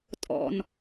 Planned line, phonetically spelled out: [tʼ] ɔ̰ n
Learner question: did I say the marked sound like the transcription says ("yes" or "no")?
yes